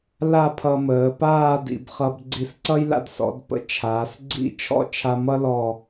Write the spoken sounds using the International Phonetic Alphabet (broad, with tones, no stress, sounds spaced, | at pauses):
l a˥˧ pʰ ʌ˧ m əː˩˧ p aː˥˧ d ḭ˩˧ b χ ʌ˧ b ɡ͡ǀ i˧˩ s ǀ ʌ˥ j l a̰˧ d s ɔ̰˩˧ d p ə̰˥ t͡ʃʰ aː˩˧ s ɡ͡ǀ ḭ˥˧ t͡ʃʰ ɔ̰˥˧ t͡ʃʰ a˧ m ʌ˥ l ɔ˧˩